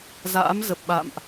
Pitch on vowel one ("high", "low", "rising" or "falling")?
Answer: rising